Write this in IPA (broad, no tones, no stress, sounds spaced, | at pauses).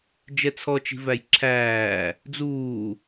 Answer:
d͡ʒ ɛ t͡sʰ ɔ t͡ʃ i̤ v æ j ǁʰ æː | d͡z uː